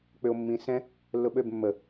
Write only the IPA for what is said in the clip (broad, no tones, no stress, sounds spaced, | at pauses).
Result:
k͡p ʏ o̯ mː ĩ s ɛ̃ | lː ʊ ɓ ø b mː ə